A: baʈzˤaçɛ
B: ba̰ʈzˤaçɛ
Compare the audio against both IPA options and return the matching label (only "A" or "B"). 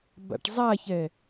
B